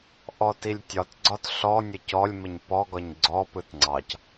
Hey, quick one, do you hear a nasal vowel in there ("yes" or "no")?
no